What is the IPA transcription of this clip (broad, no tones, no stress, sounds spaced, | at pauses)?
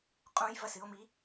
qʼ ũ j v ɐ s ɨ o̯ m i